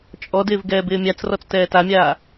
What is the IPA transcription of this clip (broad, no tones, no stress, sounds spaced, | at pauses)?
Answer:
t͡ʃʼ ɔ d ɪː v ɡ ɛː b ɪː mʲ a t͡s r ɔ t͡s t ɛː t a mʲ aː